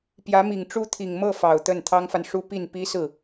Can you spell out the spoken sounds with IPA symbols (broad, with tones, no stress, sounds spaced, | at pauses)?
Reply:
p j ä˧˥ m i˨˩ ŋ ʈ͡ʂ u˥ t̪ʰ i˨˩ ŋ m ɤ˥˩ f ɑ˨˩ ʊ̯ t̪ ə˥˩ n t̪ʰ ɑ˥ ŋ f a˨ n ʂ u˥ p i˥˩ n p i˥ s ɹ̩˥˩